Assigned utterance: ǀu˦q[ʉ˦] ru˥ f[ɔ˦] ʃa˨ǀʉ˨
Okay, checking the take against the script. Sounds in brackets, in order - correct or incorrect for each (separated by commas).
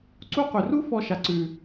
incorrect, correct